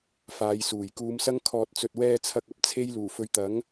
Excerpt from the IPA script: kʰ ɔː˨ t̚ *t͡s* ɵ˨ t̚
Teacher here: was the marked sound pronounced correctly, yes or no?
yes